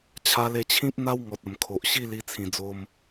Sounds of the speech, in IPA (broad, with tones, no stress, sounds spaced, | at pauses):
t͡ɕʰ a˧ l e˧ t͡ɕʰ ĩ˦ p̚ n̪ a˦ w ŋ ɔ˨ t̚ ə˨˩ m kʰ o˨ ʔ ɕ i˥˧ l i˧ t͡sʰ ĩ˨˩ d͡z o˧ m